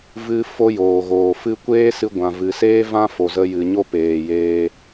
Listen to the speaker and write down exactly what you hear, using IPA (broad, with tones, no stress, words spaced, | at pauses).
vɨ˧ fo˦joː˨ɣoː˨fɨ˦ kʷeː˦sɨ˧ ɡʷã˨vɨ˨seː˦ vã˦fo˨zə˧ jɨ˨ ɲo˦peː˨jeː˧